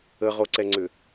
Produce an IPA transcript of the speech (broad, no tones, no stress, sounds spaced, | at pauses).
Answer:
ə ʁ o ǀ ɛ ŋ͡ǀ ʏ